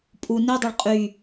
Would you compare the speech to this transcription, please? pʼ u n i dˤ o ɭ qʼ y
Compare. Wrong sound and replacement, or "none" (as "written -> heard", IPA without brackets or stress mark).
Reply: none